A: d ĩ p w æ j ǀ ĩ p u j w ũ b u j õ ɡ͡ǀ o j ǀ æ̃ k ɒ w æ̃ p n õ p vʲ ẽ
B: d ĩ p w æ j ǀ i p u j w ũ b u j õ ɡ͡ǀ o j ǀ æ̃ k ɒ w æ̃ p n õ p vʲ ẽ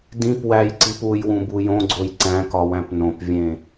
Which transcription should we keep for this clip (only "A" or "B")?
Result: B